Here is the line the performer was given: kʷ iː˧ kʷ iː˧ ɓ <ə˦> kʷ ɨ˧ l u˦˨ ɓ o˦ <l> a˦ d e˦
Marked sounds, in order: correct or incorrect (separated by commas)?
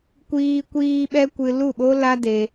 incorrect, correct